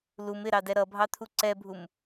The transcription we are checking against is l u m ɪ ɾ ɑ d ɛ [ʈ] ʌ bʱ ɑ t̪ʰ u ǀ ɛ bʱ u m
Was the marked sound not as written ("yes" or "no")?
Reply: yes